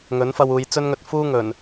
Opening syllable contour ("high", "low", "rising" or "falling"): rising